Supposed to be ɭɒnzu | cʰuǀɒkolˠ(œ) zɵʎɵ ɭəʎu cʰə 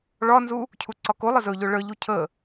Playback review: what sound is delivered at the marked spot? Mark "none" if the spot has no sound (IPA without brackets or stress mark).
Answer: ə